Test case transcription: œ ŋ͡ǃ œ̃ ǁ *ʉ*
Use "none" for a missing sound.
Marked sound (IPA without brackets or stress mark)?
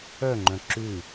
ʉ